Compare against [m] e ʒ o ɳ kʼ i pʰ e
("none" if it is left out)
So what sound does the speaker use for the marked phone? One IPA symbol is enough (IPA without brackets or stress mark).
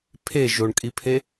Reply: pʰ